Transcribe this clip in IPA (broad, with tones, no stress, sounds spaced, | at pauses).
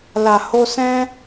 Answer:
l a˨ h o˧ s ɛ̃˦